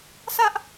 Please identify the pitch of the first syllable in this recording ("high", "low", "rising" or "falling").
high